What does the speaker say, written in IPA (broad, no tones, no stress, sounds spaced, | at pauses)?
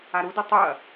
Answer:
a ɾ u d ɯ tˤ u ɐ̯